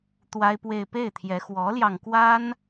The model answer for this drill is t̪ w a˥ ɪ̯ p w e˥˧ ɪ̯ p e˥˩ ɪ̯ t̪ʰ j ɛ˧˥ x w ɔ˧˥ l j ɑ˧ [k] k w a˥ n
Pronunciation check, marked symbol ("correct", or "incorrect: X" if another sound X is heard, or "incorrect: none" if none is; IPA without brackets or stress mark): incorrect: ŋ